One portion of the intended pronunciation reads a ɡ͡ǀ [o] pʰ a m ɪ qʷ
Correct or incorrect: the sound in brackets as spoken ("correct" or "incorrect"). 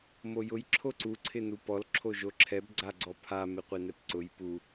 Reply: incorrect